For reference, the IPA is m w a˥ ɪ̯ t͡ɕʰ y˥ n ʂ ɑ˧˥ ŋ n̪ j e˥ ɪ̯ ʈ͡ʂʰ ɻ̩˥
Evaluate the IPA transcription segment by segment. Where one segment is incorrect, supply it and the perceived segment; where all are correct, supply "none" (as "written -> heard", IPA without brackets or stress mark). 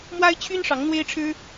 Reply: j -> w